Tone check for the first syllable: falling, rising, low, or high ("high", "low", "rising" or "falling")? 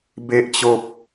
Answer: high